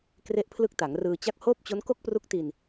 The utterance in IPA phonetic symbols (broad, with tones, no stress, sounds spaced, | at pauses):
k r e˦˥ ʔ pʰ l ɯ˦˥ k̚ t a˩˦ ŋ r ɯː˧ t͡ɕ a˦˥ k̚ h oː˥˩ p̚ t͡ɕ o˦˥ n k o˥˩ k̚ p r u˦˥ k̚ t i˧ n